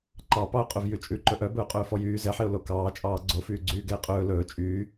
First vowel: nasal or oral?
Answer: oral